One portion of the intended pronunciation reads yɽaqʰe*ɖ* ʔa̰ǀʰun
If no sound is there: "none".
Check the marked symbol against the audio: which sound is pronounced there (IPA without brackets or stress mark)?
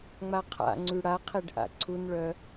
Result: ɖ